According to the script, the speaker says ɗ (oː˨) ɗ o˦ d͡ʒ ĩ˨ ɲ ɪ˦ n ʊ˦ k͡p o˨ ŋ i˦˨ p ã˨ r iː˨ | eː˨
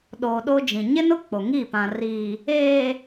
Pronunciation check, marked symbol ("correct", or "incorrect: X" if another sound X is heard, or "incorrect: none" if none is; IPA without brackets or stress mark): correct